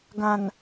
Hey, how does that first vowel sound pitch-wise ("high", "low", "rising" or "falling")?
low